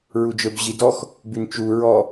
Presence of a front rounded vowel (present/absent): present